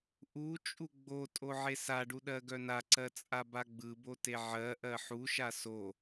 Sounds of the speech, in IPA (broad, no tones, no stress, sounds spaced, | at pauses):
ʔ u t͡ʃʼ u ɡ͡b o tʼ o ʕ e s a ɖ u ɗ ɜ ɡ œ n a ǀ ɜ t͡sʼ a b a ɡ͡b ɯ b o t e ʕ ɜ ʔ ɜ ħ u ʃ a s o